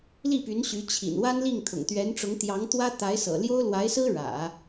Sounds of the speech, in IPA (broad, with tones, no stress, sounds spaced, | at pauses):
l i˥˩ p y˧˥ n ɕ y˧˥ t͡ɕʰ ḭ˨˩ n w a˥ n l i˥˩ ŋ t̪ʰ ʊ̰˨˩ ŋ t̪ ɥ ɛ˧˥ n ʈ͡ʂ ʊ˧˥ ŋ t̪ j ɑ˧˥ ŋ t̪ w ä˥ t̪ a˧˥ ɪ̯ s ɤ̰˨˩ l j o˥ ʊ̯ l w a˧˥ ɪ̯ s ɹ̩˥ ɻ ä̰˨˩˦